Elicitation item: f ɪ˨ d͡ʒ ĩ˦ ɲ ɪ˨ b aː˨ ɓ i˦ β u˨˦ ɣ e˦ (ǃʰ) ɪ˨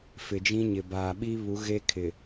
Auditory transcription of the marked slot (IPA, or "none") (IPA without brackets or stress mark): kʰ